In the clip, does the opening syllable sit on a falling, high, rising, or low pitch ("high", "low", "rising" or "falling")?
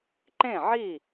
falling